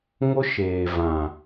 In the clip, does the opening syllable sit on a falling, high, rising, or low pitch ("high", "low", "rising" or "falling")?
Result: high